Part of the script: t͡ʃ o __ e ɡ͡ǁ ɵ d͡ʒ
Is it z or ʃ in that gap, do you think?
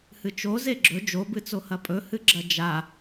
z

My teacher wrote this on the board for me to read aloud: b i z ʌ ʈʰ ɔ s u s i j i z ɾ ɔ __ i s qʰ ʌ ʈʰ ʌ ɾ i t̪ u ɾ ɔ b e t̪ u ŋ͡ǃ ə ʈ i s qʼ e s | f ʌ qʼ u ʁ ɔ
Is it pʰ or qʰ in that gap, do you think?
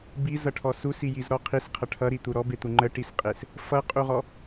qʰ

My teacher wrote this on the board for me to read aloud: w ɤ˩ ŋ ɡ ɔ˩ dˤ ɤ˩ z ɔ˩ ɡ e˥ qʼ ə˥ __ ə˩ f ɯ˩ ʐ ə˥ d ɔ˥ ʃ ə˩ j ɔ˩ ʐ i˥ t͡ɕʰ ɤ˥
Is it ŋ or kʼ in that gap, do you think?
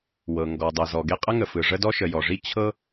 ŋ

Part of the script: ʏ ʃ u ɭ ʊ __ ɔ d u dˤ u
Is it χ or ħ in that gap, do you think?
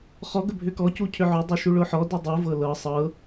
ħ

